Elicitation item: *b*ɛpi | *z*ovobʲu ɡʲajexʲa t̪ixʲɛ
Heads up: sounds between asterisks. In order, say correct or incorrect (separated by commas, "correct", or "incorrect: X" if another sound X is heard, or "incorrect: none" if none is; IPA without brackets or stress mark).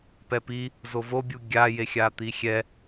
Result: incorrect: p, correct